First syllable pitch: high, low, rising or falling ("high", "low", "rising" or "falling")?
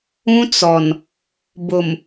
high